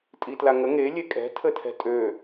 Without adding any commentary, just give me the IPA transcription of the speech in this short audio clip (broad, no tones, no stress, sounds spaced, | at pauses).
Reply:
tʼ i t l a ŋ ə ŋ e lʲ e kʼ ɛ̤ tʰ ə tʰ ɛ̤ tʼ ø